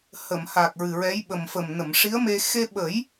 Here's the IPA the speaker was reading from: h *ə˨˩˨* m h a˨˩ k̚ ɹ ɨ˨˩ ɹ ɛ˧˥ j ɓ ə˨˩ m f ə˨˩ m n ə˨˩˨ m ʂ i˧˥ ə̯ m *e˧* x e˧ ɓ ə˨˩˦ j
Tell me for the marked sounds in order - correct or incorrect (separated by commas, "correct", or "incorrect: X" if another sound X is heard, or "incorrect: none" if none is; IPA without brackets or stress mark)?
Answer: correct, correct